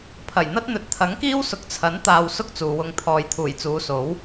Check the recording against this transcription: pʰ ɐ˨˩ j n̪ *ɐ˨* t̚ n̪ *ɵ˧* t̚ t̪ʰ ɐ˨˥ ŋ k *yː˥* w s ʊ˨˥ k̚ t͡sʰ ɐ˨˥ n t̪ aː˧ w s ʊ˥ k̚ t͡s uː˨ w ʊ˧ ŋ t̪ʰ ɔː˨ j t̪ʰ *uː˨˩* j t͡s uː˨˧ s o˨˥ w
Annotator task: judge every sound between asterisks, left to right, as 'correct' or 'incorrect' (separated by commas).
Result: incorrect, incorrect, incorrect, correct